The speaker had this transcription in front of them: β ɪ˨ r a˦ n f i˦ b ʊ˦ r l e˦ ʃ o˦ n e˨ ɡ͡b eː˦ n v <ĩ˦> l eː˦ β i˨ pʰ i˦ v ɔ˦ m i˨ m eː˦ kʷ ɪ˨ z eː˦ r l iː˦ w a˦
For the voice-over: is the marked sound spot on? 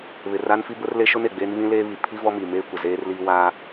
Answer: yes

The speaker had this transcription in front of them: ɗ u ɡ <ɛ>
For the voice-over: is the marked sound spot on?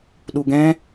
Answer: no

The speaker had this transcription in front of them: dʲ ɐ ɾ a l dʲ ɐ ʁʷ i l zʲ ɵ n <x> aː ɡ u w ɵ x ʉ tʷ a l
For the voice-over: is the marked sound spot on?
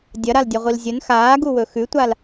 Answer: yes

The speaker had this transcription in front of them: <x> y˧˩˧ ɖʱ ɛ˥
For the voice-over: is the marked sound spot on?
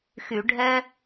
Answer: yes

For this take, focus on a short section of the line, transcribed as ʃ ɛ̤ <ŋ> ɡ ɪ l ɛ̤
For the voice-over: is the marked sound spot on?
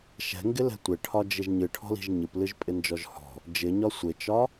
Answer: yes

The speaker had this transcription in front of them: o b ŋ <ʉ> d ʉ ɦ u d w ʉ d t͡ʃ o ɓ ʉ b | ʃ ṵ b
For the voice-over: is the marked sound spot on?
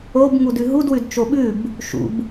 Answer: no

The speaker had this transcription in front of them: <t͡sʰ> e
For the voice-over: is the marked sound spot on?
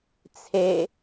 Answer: yes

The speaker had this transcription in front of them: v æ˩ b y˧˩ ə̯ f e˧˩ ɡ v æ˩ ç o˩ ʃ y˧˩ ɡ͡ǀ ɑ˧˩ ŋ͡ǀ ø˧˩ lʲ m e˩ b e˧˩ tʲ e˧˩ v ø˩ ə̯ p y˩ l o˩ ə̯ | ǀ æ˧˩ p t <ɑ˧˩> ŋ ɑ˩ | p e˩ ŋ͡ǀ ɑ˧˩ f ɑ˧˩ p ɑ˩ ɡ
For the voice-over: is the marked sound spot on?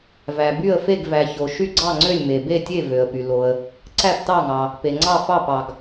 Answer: yes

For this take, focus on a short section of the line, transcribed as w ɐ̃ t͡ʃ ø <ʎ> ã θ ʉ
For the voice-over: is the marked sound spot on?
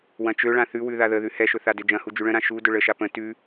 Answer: no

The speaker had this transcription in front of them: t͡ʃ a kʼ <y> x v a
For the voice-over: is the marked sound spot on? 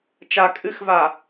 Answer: no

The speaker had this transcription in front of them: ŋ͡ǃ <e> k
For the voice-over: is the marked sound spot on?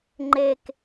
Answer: yes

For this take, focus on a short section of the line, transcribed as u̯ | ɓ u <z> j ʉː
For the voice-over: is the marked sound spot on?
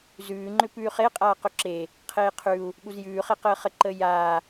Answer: yes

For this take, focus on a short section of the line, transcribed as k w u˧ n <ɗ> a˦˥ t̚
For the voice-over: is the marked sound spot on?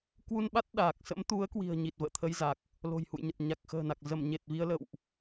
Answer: no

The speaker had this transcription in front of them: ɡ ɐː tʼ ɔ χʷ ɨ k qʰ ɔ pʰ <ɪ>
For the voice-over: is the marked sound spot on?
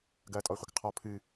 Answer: no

